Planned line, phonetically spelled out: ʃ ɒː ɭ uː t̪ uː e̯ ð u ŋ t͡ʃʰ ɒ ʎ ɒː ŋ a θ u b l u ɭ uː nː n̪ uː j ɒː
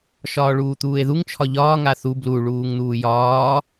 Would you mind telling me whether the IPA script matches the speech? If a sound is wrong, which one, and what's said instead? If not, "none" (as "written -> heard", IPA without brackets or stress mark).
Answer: nː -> ŋ